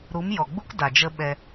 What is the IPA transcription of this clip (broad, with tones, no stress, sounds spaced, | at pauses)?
ɾ u˨˦ m j ɔ˨ ɡ͡b u˦ k d a˨ d͡ʒ ə˦ ɓ ɛ˧